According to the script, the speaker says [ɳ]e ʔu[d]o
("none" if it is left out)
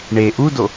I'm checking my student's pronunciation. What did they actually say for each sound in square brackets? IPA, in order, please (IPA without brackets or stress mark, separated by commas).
ɳ, d